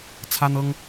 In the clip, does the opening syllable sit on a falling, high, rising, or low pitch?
high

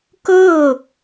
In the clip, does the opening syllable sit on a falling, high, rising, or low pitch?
falling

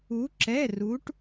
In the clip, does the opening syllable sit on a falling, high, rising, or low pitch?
rising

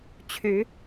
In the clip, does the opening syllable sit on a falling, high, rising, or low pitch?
rising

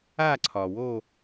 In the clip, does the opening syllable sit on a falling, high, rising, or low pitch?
falling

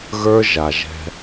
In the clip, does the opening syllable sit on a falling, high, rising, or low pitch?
high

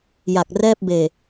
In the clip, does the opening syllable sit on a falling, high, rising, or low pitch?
low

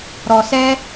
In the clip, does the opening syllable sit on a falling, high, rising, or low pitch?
low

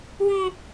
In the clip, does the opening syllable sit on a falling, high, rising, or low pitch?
high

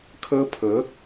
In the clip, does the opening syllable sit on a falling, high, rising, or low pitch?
high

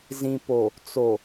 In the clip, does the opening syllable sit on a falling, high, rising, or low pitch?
low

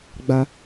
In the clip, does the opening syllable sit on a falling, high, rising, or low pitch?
high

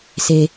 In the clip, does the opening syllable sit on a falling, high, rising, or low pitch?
low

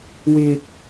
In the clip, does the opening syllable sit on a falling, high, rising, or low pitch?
low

